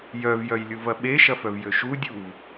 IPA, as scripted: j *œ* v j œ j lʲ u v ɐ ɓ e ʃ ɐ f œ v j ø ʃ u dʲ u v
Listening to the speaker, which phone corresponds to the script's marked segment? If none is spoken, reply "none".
œ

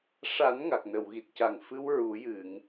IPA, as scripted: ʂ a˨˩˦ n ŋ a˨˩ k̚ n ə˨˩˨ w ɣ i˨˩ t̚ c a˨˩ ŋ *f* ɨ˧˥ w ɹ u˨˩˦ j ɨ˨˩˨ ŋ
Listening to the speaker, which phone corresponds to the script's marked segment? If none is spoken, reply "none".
f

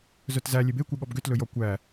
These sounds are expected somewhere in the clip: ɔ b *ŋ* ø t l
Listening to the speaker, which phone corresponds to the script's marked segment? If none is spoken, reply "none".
ɡ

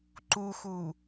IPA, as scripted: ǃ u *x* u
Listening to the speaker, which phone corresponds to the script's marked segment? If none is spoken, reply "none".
x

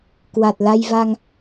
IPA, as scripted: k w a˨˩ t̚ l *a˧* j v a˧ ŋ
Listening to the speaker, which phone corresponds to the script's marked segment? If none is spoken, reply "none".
a˧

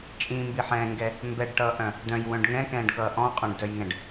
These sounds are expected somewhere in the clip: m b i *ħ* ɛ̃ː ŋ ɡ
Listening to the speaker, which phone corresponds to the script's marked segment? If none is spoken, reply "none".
ħ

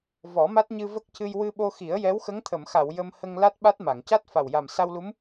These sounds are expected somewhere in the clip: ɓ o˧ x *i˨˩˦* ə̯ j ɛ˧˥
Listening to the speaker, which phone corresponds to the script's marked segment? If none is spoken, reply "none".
i˨˩˦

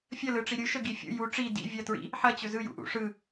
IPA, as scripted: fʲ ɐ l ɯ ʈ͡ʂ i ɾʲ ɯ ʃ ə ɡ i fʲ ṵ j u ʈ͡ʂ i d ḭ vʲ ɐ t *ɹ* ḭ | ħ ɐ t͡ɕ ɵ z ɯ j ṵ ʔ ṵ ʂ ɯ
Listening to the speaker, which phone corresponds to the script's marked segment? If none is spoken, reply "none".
ɹ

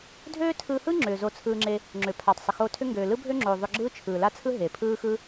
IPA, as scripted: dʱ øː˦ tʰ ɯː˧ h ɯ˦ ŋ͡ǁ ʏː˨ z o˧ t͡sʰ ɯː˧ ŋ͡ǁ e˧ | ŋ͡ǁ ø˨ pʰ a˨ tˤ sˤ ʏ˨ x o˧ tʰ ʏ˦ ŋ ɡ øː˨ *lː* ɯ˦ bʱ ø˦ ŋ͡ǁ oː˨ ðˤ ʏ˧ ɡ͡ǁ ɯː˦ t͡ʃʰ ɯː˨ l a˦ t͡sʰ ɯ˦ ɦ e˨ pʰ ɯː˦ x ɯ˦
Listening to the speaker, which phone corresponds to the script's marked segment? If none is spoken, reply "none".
l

